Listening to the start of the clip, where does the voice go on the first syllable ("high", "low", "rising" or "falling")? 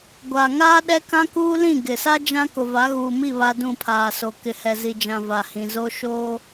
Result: low